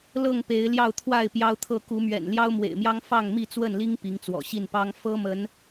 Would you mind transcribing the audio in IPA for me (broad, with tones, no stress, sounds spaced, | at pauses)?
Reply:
l ɤ˥˨ ŋ p e˨˦ ɪ̯ l j ɑ˥˨ ʊ̯ t̪ʰ w a˥˨ ɪ̯ p j ɑ˦ ʊ̯ t̪ʰ ɤ˥˨ k u˨˦ m ɥ ɛ̰˨˩ n l j ɑ˦ ʊ̯ m w ḛ˨˩ ɪ̯ m j ɑ˦ ŋ f ɑ˥˨ ŋ m i˥˨ t͡s w ə˥˨ n l i˦ ŋ p i˨˦ ŋ t͡s w ɔ̰˨˩ ɕ i˥˨ n p ɑ˦ ŋ f ɤ˦ m ə˨˦ n